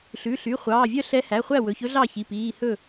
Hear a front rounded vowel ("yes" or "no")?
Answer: yes